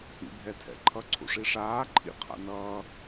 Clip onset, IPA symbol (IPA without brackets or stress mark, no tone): ḭ